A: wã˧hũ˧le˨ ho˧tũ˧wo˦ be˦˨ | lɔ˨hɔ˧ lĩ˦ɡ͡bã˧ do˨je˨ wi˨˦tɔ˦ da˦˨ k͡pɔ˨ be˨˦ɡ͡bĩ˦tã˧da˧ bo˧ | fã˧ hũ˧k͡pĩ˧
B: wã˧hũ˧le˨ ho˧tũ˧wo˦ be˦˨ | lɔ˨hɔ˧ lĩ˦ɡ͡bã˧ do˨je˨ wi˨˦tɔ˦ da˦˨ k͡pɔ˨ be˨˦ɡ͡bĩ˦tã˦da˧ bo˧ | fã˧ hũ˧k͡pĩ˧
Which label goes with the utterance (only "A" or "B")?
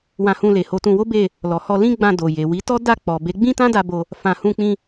B